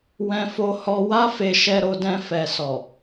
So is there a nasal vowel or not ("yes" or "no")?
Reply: yes